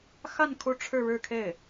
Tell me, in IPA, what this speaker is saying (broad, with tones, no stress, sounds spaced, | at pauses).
x a˥˧ n kʰ u˥˧ ʈ͡ʂʰ ɻ̩˥˧ ɻ ɻ̩˥˧ kʰ e˥˩ ɪ̯